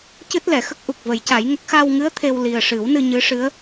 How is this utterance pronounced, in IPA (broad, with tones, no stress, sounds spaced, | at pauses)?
c ɨ˦˥ t̚ l ɛ˨˩˨ x ə˦˥ k̚ ʔ u˨˩ k̚ v ə˨˩˦ j c a˨˩˦ j ŋ ə˦˥ k̚ x a˧ w ŋ ɨ˧˥ ə̯ t̪ʰ e˧ w l i˨˩ ə̯ ʂ ɨ˨˩˦ w n ɨ˧ ɲ ɨ˧˥ ʂ ɨ˧˥ ə̯